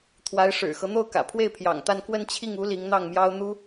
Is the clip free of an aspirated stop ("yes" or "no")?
no